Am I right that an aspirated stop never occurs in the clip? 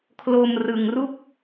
no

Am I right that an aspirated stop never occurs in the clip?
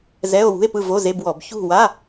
yes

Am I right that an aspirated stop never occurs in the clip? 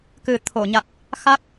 no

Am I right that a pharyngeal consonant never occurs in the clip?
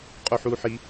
no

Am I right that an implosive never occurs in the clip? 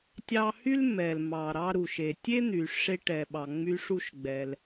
no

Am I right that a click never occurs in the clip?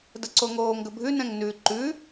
no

